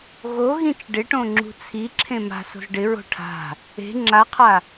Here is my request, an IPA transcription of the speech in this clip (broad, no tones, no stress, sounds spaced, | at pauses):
ɣ o ɣ ĩ t͡ʃ ɖ ɪ ʈ õ ŋ͡ǁ ṳ t͡sʰ i ǁʰ ẽ m a̤ s o̤ z ɖ ɪ ɹ o̤ ʈʰ a̤ | e̤ ŋ͡ǁ a qʰ a